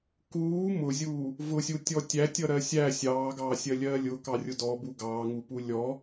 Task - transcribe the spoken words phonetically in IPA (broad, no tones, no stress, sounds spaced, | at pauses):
k uː m ʊ zʲ uː | v ʊ sʲ u tʲ ɔ tʲ æ tʲ ʌ ɾ ɜ sʲ æ sʲ ɑː ɡ ɑː sʲ ɜ lʲ ɜː lʲ ʊ k ɑ rʲ ʊ d ɔ b u ɡ ɑː ŋ u p u lʲ ɔ